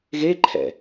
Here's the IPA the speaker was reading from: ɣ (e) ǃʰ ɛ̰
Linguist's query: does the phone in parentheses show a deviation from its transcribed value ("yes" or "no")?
no